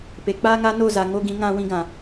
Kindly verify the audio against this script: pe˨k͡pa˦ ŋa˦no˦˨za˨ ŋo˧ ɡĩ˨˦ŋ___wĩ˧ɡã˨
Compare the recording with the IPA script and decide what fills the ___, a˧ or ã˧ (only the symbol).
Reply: ã˧